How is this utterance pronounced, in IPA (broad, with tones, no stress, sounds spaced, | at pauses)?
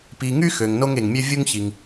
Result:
p i˨ ŋ y˥ x ø˩ ŋ n o˥ ŋ e˩ ŋ mʲ ø˥ vʲ u˥ ŋ ç i˩ ŋ